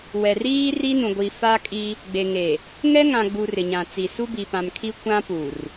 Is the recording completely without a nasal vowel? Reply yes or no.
no